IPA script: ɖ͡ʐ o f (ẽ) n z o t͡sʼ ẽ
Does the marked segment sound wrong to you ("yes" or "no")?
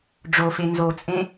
yes